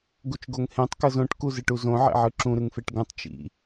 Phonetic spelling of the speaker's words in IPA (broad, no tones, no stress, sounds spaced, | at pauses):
ɡ u t͡ʃ ɡ o ŋ h ẽ tˤ k ɤ z õ ʈ k u z ɯ ʈ u z õ ʕ ḛ ʕ ɯ ǁ ũ ɾ ɯ ŋ f e ʈ ɡ ũ tˤ t͡ʃ ḭ